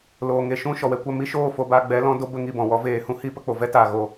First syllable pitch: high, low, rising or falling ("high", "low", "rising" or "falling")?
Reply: low